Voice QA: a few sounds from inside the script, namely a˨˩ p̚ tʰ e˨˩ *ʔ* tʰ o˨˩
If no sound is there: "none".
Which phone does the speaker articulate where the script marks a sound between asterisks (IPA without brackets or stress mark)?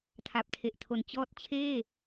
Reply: ʔ